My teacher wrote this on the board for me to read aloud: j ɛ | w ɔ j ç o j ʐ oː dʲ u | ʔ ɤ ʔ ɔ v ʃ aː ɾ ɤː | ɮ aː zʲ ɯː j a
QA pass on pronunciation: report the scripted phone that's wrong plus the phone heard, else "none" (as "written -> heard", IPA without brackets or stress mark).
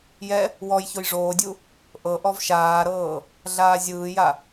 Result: none